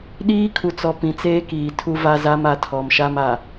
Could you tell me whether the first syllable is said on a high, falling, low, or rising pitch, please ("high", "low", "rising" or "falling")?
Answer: high